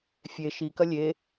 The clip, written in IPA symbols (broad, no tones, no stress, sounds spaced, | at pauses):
fʲ e ʃ i k ɐ lʲ e